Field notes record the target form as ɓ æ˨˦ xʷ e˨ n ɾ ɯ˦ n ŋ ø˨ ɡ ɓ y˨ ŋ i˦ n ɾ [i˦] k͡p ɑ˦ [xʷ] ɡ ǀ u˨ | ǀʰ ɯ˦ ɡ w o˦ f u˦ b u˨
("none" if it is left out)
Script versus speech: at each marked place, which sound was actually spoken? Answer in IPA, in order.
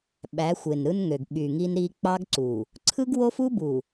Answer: i˦, none

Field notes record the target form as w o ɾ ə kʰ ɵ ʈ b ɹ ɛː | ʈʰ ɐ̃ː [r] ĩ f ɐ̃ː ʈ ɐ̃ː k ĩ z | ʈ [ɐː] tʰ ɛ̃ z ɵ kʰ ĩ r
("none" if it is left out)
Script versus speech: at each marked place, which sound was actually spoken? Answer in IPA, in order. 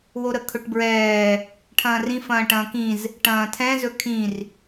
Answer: r, ɐ̃ː

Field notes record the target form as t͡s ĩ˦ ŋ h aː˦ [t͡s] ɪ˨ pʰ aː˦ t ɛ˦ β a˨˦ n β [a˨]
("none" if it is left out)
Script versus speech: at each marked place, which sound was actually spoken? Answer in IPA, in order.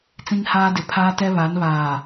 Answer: d, aː˨

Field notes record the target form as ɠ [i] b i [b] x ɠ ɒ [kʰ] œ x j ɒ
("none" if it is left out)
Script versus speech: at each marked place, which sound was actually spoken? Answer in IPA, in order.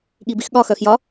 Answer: i, none, x

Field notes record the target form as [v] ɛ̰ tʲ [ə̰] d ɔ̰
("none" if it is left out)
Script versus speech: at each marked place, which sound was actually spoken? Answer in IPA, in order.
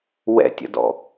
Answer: w, ə̰

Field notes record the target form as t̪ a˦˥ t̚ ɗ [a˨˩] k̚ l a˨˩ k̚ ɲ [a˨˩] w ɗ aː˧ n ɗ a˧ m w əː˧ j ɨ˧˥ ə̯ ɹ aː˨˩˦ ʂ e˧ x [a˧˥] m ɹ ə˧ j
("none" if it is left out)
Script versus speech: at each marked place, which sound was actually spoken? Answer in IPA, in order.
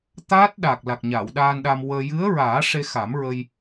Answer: a˨˩, a˨˩˨, a˨˩˦

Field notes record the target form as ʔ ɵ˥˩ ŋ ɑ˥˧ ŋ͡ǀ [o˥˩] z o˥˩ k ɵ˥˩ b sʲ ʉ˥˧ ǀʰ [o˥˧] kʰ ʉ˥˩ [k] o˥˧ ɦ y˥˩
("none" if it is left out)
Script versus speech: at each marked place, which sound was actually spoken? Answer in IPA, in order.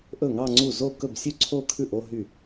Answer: u˥˩, o˥˧, ʔ

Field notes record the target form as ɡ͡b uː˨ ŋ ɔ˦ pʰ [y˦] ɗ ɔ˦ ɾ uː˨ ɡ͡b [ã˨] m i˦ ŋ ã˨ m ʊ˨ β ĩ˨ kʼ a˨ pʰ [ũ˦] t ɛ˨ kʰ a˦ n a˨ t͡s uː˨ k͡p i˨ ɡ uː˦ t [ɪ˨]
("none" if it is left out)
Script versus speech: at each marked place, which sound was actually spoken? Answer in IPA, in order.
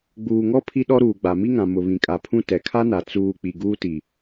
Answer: i˦, a˨, ũ˦, i˨

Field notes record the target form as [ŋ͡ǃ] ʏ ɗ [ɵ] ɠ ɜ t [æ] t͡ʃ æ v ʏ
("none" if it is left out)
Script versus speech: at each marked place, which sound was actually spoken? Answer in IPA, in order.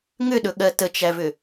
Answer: ŋ, ɵ, ə

